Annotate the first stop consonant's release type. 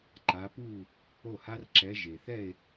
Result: click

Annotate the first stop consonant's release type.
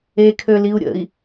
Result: aspirated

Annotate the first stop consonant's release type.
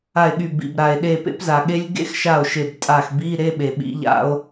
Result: implosive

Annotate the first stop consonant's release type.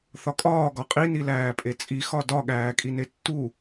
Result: ejective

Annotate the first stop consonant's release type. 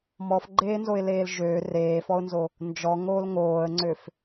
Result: click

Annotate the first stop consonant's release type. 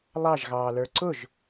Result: click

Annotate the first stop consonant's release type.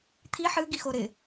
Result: aspirated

